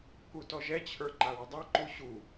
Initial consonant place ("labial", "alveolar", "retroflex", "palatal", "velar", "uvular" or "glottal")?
velar